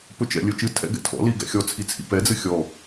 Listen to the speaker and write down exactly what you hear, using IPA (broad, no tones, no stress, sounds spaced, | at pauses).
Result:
p ɵ t͡ʃ ɛ̰ lʲ ɵ t͡ʃ ɨ tʰ ɛ̰ ɡ ɛ̰ tʰ ɔ̰ l i ɡ ɛ̰ xʲ ɔ t͡sʰ i t͡sʰ ḭ p ɛ d͡z ɨ xʲ ɔ